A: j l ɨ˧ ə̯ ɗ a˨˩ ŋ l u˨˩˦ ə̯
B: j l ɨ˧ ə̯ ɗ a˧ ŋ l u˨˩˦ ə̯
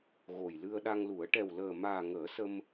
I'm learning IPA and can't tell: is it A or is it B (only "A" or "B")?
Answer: B